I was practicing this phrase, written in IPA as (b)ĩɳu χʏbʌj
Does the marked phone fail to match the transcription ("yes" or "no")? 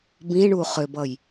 no